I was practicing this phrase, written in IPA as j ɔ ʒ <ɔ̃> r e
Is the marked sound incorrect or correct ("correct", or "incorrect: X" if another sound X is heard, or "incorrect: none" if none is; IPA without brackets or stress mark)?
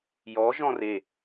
correct